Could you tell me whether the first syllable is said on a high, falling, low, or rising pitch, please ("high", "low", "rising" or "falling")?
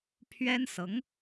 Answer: high